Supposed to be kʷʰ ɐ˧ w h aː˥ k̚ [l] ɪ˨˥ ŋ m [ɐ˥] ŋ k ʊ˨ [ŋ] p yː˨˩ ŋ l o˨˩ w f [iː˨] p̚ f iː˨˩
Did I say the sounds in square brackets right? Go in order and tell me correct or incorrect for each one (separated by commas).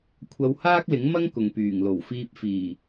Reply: correct, correct, correct, incorrect